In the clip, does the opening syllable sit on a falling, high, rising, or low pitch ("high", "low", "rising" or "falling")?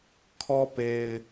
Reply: high